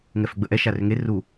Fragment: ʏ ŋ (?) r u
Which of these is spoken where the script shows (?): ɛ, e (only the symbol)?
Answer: e